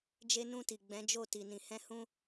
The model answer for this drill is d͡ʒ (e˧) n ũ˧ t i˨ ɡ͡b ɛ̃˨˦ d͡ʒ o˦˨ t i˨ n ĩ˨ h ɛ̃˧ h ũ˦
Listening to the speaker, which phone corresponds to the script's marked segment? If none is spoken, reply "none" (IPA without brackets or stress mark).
e˧